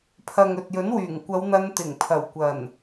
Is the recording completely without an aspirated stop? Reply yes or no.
no